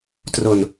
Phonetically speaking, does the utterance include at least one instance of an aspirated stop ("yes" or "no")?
no